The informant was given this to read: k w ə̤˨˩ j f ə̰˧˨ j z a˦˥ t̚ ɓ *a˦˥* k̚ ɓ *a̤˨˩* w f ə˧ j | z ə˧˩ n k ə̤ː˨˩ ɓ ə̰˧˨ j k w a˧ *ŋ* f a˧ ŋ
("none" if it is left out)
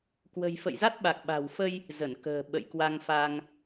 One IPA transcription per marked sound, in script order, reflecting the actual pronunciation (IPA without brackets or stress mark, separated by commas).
a˨˩, a̤˨˩, ŋ